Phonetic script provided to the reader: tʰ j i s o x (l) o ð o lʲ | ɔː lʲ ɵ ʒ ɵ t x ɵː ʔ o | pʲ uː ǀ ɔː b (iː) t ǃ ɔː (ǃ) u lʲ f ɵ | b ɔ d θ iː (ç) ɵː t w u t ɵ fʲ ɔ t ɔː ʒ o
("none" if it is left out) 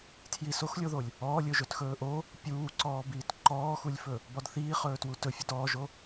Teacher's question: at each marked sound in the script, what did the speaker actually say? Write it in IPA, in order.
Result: lʲ, iː, x, χ

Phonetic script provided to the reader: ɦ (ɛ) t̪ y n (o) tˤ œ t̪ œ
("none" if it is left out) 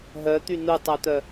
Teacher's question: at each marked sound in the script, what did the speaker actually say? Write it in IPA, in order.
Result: œ, u

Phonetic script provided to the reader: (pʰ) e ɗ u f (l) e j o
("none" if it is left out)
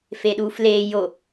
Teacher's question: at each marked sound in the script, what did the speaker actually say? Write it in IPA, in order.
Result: f, l

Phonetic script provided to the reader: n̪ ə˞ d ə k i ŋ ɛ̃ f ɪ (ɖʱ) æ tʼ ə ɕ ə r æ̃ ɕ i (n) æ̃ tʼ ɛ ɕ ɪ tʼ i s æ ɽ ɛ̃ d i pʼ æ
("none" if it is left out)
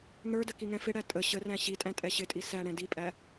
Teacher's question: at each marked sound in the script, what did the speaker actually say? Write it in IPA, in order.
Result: ɽ, tʼ

